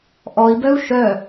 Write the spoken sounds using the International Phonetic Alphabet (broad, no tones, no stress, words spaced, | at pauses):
ʔɔi̯bœu̯ ʃœ